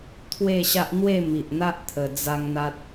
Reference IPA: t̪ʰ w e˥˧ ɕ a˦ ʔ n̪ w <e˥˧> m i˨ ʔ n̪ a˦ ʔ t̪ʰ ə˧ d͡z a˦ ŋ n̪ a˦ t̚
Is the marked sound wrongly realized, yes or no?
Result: no